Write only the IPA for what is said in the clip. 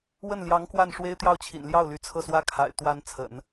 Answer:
wə˥˩nljɑ˧˥ŋ kwa˥˩nʂwe˥ɪ̯ t̪jɑ˥˩ʊ̯t͡ɕʰḭ˨˩nljɑ˥˩ʊ̯ ly˧˥t͡sʰɤ˥˩swä˥ kʰa̰˨˩ɪ̯ t̪wa˧˥n t͡sʰə̰˨˩˦n

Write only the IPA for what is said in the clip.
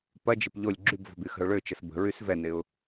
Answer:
pɐd͡ʒɪp ʎolʲ ɡ͡ǁybvɔ̤b yxə̤ʊ̯ɭøt͡ʃəs bə̤ɹys vɛnɪʊ̯

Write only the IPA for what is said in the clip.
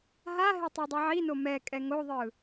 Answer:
ɦaɦe tˤedˤeʕino mɛ kʼɛŋoðˤɯ

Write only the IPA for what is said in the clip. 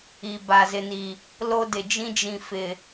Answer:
i˨ ba˨zɪ˨ni˨ | lo˦dɪ˨d͡ʒĩ˦ d͡ʒĩ˨fɪ˨

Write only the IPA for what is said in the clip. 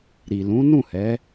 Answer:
ɾi˨lũ˨˦ nũ˦˨hɛ˨˦

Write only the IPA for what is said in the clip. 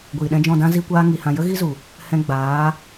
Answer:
ɡʷiː˨ɗɛ̃˧d͡ʒɔ̃˦˨dã˦ zi˦kʷaː˦ ŋi˧hã˧ jə˦ɣi˦zu˨ | hɛ̃˧ɡ͡baː˨˦

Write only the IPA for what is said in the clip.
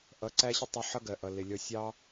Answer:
ʔʌ˨˦ǀæ˦ɕɪ˦tˤ ʊ˧ħʌ˦ɡɜ˨ʔʌ˨ lɪ˨ lʲɔ˨sʲɑ˧

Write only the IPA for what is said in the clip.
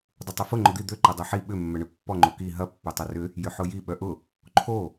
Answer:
dˤʊtˤʏfʊ ŋ͡ǃʊd̪i d̪ø ǃɐdˤœħi ɓʏ mːœɳøpːɔ ŋ͡ǃoki ɦɐ pːœtˤɐrʏ | jʏħʊji ɓœʔʊ | ǃʰo

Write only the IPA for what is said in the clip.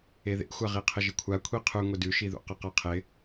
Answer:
eðḛxʷa ʁiqʰɪʒɪkʷʰa kʷʰiqʰʉ ŋʷɪdʉʃiðṵ qɘqaqʰɪ

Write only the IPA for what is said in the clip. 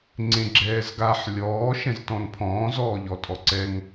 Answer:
ŋ͡ǀẽɡ͡ǁɛːzɡaħ lʲɔː ʃɛ̃ztɔ̃npʰɔ̃ːz ɔːʎɔtʼɔǀɛŋ

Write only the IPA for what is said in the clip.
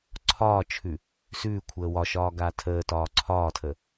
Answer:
ǀʰɒːt͡ʃʰʉ | sʉː kʷʰəːwɒʃɒː ɡaːtʰəːtɒː ǀʰɒːtʰə

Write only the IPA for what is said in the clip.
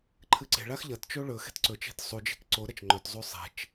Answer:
ǃʰɨǀe̤ɭax ʎɐtt͡ʃo ɭɵ xe̤tǀɵt͡ʃe̤t sˤud͡ʒe̤k ǀoɾɐt͡ʃ ŋ͡ǃɵtzˤu sˤe̤t͡ʃ

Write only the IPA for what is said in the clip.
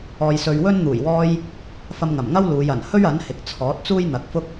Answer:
ɔː˧jsɵ˧ɥ wɵ˥n n̪uː˨˩jwɔː˧j | fɐ˧mŋɐ˨˩mŋɐ˥w luː˨˧j ɐ˨˩n hɵ˥ɥɐ˨˥n hɪ˨k̚t͡sʰɔː˨˥t̚t͡suː˥j n̪ɐ˨˥k̚fʊ˥k̚

